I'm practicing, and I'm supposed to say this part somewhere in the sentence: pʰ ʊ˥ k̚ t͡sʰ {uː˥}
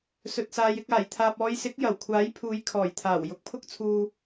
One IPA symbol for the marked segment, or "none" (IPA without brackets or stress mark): uː˧